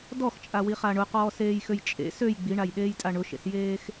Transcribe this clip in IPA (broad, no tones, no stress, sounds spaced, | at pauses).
d ɔ x t͡ʃʼ a w i χ a ɳ ʊ q ɔː s eː j x ø j t͡ʃʼ ḛ s ø j ɡ͡b i ɳ a j ɗ eː j tʼ a ɳ ʊ ʃ ḛ s j eː x